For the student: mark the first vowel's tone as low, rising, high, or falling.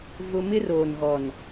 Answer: high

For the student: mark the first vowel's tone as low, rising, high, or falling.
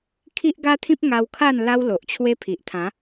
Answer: high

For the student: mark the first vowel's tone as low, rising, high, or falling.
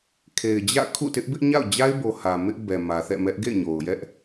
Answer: low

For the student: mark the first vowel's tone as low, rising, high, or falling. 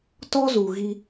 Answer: high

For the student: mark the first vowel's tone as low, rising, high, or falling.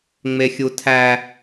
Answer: high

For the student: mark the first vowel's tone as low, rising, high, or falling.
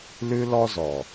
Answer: high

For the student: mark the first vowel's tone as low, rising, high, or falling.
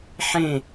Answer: falling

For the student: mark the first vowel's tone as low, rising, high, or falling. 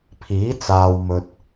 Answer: rising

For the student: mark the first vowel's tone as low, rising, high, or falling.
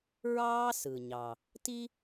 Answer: high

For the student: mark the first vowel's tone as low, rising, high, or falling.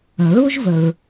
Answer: low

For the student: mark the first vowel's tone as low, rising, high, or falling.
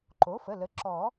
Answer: rising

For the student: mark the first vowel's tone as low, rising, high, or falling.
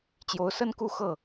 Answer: rising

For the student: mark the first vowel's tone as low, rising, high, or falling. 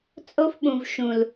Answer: high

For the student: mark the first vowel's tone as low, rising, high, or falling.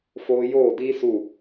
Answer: high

